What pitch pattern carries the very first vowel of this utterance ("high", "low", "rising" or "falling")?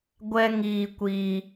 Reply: high